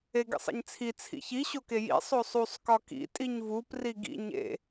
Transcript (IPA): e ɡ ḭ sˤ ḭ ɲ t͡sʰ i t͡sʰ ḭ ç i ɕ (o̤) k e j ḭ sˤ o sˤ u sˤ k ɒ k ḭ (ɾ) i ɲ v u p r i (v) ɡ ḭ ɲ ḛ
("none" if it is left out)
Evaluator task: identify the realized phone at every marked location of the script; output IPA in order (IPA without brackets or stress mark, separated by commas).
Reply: o, tʼ, none